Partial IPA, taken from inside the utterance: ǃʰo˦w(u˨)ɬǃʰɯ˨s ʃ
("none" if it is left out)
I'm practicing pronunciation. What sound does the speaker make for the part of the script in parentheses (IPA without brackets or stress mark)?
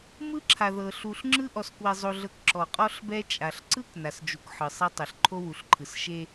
u˨